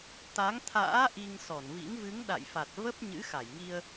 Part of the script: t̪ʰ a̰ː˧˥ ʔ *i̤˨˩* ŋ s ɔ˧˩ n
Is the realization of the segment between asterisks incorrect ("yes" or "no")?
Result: yes